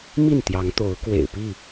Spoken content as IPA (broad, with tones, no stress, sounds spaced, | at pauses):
m i˥˨ n t̪ j ɑ˨˦ ŋ t̪ o˨˦ ʊ̯ k w ḛ˨˩ ɪ̯ p i˥˨